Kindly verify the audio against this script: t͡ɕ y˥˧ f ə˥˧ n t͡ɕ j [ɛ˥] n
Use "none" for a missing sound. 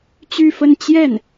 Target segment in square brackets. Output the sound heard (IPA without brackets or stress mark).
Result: ɛ˥˩